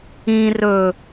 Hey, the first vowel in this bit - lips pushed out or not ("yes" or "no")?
no